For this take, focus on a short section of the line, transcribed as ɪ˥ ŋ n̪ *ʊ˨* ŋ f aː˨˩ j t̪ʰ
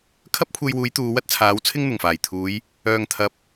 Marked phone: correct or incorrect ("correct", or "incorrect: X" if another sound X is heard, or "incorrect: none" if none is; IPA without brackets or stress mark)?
incorrect: ʊ˨˩